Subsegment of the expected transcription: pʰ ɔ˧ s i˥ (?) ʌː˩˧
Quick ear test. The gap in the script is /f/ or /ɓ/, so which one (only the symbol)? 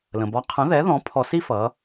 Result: f